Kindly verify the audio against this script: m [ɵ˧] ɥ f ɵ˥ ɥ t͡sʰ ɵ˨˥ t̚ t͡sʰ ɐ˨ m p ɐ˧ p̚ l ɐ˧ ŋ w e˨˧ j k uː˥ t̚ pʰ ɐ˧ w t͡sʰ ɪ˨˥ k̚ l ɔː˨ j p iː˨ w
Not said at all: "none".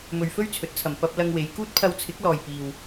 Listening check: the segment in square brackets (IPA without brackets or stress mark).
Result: ɵ˧